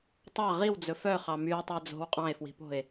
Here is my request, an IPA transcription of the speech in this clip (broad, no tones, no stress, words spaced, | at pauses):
tˤɑ ʁiwd͡zɵ fœχɑ mye̯tˤœ d͡zo̤w qʼɑ̃e̯fwi̤po̤e̯